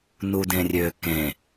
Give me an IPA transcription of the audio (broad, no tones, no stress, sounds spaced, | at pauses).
n u d ẽ rʲ ø k ẽ